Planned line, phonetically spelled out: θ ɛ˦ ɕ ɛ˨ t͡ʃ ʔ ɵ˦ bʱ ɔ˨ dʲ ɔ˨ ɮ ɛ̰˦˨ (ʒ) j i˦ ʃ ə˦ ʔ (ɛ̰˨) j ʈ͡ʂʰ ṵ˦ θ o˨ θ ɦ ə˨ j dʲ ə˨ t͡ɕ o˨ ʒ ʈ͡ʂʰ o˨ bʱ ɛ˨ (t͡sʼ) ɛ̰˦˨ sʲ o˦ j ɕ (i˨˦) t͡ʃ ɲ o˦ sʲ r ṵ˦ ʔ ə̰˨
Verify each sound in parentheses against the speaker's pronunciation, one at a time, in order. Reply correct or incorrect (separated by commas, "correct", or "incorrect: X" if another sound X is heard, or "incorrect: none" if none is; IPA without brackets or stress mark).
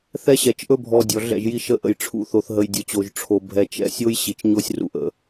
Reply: correct, incorrect: ə̰˨, incorrect: t͡ʃ, incorrect: i˨